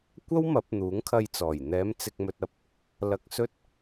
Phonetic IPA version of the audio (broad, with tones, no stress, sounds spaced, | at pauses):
kʷ ɐ˥ w m ɐ˨˥ p̚ n̪ uː˨˥ ŋ kʰ ɐ˧ j t͡s ɔː˨˩ j n̪ ɛː˨˧ m t͡s ɪ˨ k̚ m ɵ˧ t̚ ɐ˧ p̚ | l ɐ˧ k̚ s ɵ˥ t̚